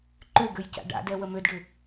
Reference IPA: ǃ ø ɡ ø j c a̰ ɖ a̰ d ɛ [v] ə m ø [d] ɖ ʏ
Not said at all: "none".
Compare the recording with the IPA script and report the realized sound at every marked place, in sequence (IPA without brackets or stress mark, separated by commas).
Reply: w, d